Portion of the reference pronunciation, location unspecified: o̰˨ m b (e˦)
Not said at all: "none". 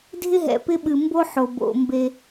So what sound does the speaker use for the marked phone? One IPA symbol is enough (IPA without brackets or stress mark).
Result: e˦